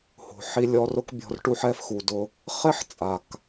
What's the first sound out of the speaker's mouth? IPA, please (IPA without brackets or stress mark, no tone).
h